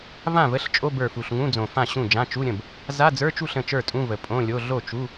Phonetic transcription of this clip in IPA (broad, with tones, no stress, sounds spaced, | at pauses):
v ã˥˩ v ə˧˥˧ ɬ t͡ʃʼ o˧˥˧ b ə˞˨˩ f u˨˩ ɬ ŋ ũ˧˥˧ d͡z õ˨˩ f ã˥˩ ɕ ũ˥˩ d͡ʒ ã˧˥˧ t͡ʃ u˧˥˧ ɾʲ ə̃˥˩ b | z a˧˥˧ d͡z ə˞˧˥˧ t͡ʃ u˥˩ ɬ ə̃˥˩ t͡ʃ ə˞˥˩ tʼ ũ˧˥˧ v ə˨˩ pʼ õ˧˥˧ lʲ o˧˥˧ ɮ o˥˩ t͡ʃ u˧˥˧